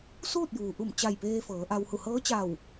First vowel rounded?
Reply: yes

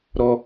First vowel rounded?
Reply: yes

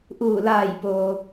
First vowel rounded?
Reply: yes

